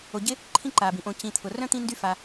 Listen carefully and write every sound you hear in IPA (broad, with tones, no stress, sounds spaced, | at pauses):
o˨ ɟ ɪ˥ | ǃʰ ĩ˥ ǃ aː˩ b ĩ˩ ʔ õ˨ c ĩ˨ t̪ʰ ʊ˩ r œ̃˥ t̪ ĩ˥ n d y˥ f a˨